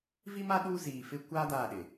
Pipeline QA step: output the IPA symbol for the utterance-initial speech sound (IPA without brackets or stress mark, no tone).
v